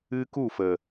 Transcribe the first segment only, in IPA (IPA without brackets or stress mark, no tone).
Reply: ɨ